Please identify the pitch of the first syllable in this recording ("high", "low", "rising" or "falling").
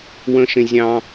high